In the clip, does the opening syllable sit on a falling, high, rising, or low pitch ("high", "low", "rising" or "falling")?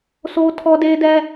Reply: high